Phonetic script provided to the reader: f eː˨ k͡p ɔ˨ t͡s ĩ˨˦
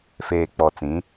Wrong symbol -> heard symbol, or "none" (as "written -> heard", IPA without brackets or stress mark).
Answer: none